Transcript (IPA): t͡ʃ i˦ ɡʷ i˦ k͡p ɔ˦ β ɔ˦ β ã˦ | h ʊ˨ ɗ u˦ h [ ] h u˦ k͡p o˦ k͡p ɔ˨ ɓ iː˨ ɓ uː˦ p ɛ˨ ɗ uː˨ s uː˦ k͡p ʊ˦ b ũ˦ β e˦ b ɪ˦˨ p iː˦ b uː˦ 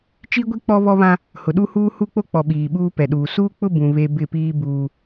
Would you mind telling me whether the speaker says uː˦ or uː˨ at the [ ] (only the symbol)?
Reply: uː˦